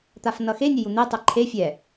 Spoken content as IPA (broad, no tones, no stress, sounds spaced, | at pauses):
t̪ a f n ʌ x e nʲ ɛ j u n̪ e tˤ ɛ ǃʰ e fʲ ɛ